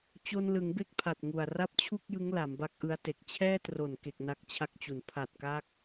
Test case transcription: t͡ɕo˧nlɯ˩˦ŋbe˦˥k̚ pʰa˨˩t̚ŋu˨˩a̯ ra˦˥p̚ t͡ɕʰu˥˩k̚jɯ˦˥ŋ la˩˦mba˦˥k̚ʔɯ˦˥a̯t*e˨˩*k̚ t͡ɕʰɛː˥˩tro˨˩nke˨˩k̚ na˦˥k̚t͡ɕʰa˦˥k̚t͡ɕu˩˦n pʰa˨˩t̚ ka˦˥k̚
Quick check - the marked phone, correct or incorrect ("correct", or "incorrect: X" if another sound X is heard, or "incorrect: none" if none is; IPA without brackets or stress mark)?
correct